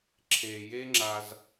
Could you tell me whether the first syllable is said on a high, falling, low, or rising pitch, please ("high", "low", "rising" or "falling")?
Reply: low